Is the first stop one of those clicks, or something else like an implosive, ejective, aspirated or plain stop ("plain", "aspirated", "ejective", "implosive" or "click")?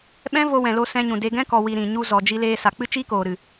implosive